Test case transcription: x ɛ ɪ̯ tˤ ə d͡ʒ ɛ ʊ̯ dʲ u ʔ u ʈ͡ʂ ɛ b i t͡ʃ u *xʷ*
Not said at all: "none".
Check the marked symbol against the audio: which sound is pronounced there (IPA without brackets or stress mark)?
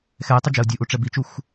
xʷ